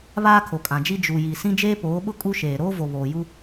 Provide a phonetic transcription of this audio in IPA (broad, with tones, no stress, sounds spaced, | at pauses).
β aː˦ kʰ o˨ kʼ ã˨ d͡ʒ i˦ d͡ʒ u˨ j i˨ s ĩ˦ d͡ʒ eː˦ p oː˨˦ ɓ ʊ˦ kʼ u˦ ʃ eː˨ ɾ oː˦ v o˨ β oː˨ j u˦